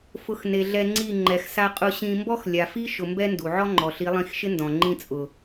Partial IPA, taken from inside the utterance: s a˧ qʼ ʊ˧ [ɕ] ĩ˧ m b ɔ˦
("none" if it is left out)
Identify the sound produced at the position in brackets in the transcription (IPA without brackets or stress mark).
ɕ